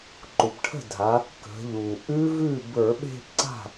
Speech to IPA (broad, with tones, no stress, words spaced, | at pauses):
ǃu˩pʈʰə̤˥˩dʱa˩˧ | kə̤˩˧ʎu˩ʔʉ˦˥vʉ˥˩ bə˞˧˩˧ɓe̤˥˧pǀa̤˥˩